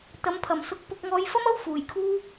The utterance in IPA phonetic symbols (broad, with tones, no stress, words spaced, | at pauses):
t̪ɐ˨˧mpʰɐ˨˩msʊ˧k̚pʊ˧k̚ ŋɔː˧jfɐ˥mɐ˥w fuː˨˩jkʰuː˥